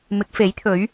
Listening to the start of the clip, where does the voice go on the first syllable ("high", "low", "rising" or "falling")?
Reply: rising